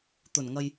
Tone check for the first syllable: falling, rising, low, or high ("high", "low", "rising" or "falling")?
low